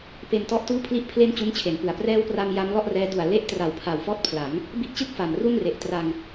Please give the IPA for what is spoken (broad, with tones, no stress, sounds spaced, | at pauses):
p e˧ n t ɔ˦˥ ʔ t uː˥˩ pʰ l i˥˩ ʔ pʰ l e˥˩ n t͡ɕ u˦˥ n t͡ɕʰ e˩˦ n p ɯ˨˩ a̯ p r ɛː˦˥ w p r a˧ m j a˦˥ m l ɔ˥˩ ʔ r ɛː˦˥ d u˨˩ a̯ l e˦˥ ʔ t r a˩˦ w pʰ a˨˩ w f ɔː˥˩ t̚ pʰ l a˩˦ ŋ | b i˦˥ ʔ t͡ɕ ɯ˥˩ k̚ f a˨˩ m r u˥˩ n r e˨˩ ʔ t r a˧ ŋ